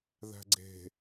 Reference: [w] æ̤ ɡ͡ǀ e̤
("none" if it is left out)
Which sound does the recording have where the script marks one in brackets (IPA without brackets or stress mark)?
ð